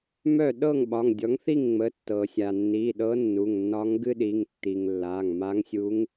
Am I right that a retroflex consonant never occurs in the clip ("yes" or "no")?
yes